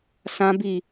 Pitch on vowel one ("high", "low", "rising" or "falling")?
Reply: high